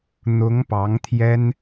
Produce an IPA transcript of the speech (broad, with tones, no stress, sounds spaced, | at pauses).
n̪ ʊ˧˥ ŋ p ɑ˧˥ ŋ t̪ʰ j ɛ˥ n